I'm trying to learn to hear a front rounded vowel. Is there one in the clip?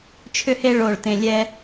yes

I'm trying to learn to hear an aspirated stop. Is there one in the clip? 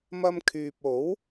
yes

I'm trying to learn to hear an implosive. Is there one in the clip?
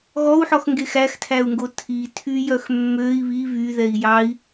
no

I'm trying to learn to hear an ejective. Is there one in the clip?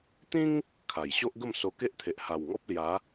no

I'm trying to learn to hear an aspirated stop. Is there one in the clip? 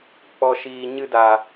no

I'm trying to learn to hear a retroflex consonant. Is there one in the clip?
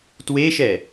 no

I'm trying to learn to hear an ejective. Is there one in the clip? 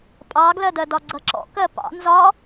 yes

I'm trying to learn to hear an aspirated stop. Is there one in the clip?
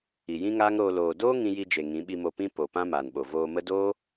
no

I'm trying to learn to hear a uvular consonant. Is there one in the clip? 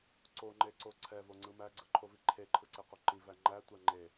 yes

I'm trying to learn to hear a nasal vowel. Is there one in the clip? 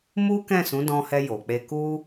yes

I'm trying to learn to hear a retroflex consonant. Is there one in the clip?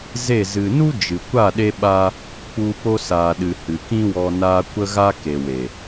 no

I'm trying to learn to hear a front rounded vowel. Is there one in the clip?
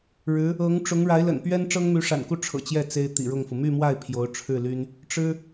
yes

